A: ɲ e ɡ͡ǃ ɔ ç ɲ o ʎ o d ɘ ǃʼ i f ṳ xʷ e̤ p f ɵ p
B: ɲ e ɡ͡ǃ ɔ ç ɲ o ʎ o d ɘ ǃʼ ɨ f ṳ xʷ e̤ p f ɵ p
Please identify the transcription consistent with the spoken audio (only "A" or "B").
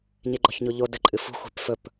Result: B